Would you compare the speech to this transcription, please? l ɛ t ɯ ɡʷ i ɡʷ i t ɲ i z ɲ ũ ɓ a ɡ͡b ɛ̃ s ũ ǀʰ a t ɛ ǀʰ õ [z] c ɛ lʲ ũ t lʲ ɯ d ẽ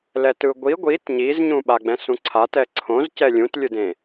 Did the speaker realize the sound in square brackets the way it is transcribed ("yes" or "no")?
yes